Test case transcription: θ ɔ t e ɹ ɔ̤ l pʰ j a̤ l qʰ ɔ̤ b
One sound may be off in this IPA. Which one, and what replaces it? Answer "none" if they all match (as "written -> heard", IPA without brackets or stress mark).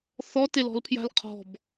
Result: ɹ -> l